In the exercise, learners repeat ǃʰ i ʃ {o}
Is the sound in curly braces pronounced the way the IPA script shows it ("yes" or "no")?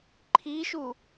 no